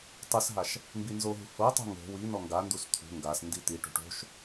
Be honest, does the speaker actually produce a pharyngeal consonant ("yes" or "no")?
no